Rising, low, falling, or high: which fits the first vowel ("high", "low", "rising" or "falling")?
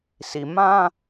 low